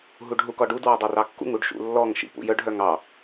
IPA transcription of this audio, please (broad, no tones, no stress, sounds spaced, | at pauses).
ɦ u ɖ ɦ u k ɔ ɖ u d w ɑ dˤ œ r ɑ kː ṵ ŋ u ɖ ʃ ṵ lː ɔ ŋ ʃ ḭ p ṵ j œ ɖ ɦ œ ŋ ɑ